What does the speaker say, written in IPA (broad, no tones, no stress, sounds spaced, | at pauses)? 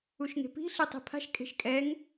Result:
u ʃ ŋ e̤ p i̤ ɬ e tˤ i̤ pʰ a̤ ʃ kʼ e̤ ʃ kʼ ɛ ŋ